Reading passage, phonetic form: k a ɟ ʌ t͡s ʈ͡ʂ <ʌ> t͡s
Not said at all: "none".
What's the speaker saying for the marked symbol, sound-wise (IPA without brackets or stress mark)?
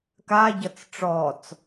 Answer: ɔ